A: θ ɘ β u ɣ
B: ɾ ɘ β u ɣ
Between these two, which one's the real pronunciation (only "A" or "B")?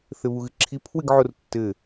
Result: A